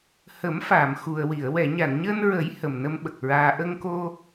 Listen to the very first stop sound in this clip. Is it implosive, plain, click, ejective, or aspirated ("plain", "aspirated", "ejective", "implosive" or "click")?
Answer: implosive